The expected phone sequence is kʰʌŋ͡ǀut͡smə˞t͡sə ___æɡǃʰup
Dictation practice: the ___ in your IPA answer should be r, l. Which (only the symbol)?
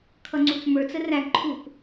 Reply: r